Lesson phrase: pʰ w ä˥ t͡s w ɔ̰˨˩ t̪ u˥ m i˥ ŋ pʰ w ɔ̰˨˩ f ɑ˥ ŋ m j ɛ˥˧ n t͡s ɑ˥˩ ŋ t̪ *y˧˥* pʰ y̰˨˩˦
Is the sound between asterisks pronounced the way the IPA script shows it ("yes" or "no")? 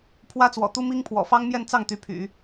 yes